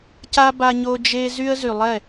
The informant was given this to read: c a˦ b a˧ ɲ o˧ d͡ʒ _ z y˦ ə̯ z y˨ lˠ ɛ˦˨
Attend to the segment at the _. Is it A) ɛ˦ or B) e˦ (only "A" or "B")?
B